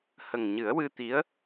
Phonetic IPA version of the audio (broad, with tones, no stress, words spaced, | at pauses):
hə˨˩ŋɲɨ˨˩˦ə̯wɨ˧ t̪i˧˥ə̯